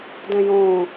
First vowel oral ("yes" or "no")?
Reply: no